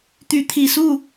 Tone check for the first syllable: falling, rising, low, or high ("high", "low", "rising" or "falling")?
rising